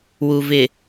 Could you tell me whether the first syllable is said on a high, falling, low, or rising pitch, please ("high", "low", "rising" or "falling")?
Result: low